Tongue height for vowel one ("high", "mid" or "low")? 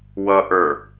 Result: mid